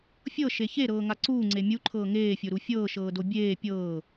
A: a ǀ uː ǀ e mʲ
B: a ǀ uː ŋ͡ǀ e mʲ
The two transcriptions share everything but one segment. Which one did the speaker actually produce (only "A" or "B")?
B